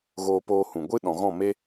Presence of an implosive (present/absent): present